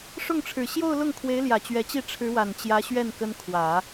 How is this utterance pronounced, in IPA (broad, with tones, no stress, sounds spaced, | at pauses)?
ʂ ʊ˥˩ ŋ ʈ͡ʂʰ ɻ̩˨˩ ɕ j o˥˧ ʊ̯ l ʊ˥˩ ŋ kʰ w e˧˥ ɪ̯ l j ä˨˩ t͡ɕ ɥ ɛ˧˥ t͡ɕ i˥˩ ʈ͡ʂʰ ɻ̩˧˥ w a˨˩ n t͡ɕ j ä˧˥ ɕ ɥ ɛ˥˩ n k ə˥ n kʰ w ä˨˩˦